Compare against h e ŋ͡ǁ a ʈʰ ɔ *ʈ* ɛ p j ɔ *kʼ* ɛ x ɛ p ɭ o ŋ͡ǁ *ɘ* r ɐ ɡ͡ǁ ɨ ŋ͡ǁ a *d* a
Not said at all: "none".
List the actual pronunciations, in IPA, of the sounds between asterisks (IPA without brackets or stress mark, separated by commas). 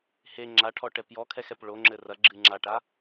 ʈ, kʰ, ɘ, ʈ